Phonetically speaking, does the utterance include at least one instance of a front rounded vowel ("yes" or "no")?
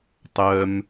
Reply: yes